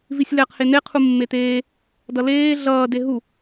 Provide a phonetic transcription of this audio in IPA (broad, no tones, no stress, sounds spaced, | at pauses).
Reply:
v i sʲ l ɛ q h e n̪ e qʰ u mː e t̪ eː | d ʌ l eː ɮ ʌː d e ɦ u